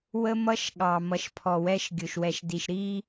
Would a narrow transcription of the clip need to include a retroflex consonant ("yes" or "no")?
no